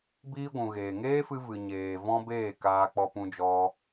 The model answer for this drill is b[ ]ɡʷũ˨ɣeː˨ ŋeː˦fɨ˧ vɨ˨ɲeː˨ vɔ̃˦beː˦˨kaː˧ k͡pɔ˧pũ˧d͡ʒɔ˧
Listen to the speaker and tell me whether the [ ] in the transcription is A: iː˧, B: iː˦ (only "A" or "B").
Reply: B